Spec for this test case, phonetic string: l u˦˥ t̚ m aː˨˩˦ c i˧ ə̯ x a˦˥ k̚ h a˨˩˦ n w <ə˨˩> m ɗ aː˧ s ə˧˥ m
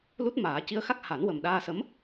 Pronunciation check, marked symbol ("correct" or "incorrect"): correct